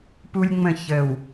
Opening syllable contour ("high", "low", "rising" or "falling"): high